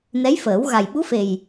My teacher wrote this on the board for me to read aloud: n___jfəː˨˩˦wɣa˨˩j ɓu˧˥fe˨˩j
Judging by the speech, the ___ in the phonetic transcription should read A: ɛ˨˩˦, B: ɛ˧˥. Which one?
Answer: B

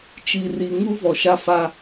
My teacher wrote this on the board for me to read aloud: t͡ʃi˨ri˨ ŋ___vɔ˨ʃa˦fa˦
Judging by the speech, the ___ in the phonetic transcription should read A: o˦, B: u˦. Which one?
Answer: B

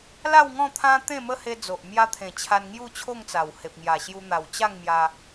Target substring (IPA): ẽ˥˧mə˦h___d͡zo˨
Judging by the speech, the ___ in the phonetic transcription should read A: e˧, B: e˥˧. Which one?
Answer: A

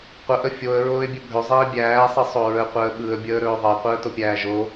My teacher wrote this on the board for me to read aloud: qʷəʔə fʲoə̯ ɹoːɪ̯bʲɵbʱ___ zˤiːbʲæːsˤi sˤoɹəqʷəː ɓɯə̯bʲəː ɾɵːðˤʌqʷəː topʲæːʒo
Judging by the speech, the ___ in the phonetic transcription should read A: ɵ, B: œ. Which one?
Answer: A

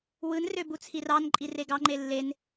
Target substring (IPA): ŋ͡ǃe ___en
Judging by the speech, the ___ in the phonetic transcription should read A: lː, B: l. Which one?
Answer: A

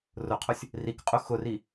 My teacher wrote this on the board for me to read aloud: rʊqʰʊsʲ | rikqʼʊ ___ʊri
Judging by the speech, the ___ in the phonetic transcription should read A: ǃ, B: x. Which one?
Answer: B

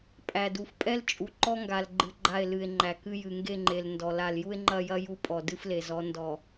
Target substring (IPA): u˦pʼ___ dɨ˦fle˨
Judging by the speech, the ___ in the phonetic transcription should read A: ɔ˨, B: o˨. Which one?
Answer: A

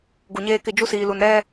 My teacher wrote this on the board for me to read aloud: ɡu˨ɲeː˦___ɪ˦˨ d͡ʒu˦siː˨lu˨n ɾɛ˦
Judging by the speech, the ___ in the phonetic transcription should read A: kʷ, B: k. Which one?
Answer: B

